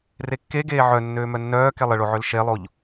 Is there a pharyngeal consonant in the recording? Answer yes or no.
yes